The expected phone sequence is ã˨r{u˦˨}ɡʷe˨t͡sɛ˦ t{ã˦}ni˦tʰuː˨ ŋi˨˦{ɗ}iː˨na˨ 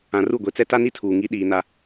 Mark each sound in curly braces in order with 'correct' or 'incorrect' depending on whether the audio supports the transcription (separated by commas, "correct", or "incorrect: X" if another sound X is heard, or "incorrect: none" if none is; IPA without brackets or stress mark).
correct, incorrect: a˦, correct